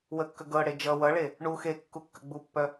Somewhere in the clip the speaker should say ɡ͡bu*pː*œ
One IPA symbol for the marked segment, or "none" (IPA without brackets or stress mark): pː